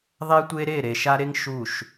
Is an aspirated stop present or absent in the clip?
absent